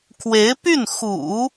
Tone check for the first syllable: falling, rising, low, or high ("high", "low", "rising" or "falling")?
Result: rising